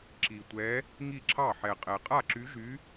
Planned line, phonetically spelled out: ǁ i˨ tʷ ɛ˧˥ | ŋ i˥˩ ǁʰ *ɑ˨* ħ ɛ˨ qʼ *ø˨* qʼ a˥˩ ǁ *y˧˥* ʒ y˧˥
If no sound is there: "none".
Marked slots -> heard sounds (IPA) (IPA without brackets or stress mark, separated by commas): ɑ˥˩, ɛ˨, y˧˥